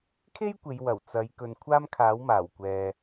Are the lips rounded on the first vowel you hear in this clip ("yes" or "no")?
no